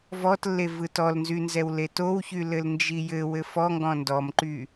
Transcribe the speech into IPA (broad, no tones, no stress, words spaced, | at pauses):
vɔtlːe vɯtɔlnzynzɛw letowçy lɘlnd͡ʒijɘ wɘfɔŋɡɔ̃ ndɔmǃy